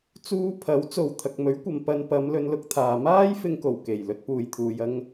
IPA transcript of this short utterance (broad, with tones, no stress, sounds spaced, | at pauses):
t͡s uː˥ pʰ ɐ˨˥ w t͡s o˨ w t̪ʰ ɐ˨ k̚ m ɵ˨˥ ɥ kʷ ɐ˨ m p ɐ˧ n p ɐ˨˧ m l ɵ˧ n l ʊ˧ k̚ t̪ʰ aː˨ m aː˥ j f ɪ˧ ŋ k o˨˩ w k e˨˩ j l ɵ˨˥ t̚ p uː˨ j t̪ʰ uː˨ j ɐ˧ ŋ